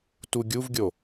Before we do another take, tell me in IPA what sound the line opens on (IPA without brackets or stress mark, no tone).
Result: t